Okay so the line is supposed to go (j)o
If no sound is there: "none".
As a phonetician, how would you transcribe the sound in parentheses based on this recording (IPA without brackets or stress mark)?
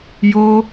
j